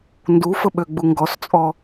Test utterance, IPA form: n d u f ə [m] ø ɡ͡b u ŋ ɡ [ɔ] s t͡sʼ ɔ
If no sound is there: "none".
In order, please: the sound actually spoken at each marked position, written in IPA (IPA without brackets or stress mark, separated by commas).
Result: ɓ, ɔ